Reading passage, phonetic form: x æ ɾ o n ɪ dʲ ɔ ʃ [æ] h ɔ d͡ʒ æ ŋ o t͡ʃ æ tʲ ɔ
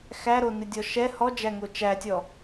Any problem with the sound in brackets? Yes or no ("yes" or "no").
yes